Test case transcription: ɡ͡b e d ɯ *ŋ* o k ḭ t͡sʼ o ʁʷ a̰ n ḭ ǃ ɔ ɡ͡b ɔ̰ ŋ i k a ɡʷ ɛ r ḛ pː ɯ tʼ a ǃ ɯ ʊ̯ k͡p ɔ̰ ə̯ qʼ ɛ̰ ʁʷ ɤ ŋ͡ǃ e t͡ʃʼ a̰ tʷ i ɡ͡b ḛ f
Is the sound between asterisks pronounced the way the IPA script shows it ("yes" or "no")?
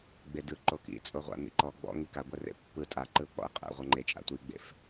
no